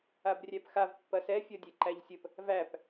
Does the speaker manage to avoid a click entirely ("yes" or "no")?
no